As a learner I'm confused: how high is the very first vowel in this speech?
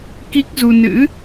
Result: high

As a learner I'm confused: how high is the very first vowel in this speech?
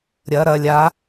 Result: low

